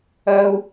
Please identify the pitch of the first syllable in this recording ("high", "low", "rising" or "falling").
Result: high